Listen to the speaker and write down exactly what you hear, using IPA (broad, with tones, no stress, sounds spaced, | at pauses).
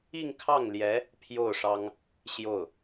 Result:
i˥˧ ŋ kʰ ɑ˥˩ ŋ l j ɛ˧˥ | pʰ j o˥˩ ʊ̯ ʂ ɑ˥ ŋ | ɕ j o˥˩ ʊ̯